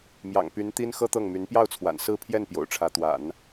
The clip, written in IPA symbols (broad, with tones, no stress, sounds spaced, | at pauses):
m j ɑ̰˨˩ ŋ p y˧˥ n t̪ i˥ n x ɤ˥ t̪ ɤ˥˩ ŋ m y˧˥ n p j ɑ˥˩ ʊ̯ t͡sʰ w a̰˨˩ n s ɹ̩˥˧ pʰ j ɛ˥˩ n p j o̰˨˩ ʊ̯ ʈ͡ʂʰ ä˧˥ t̪ w a̰˨˩˦ n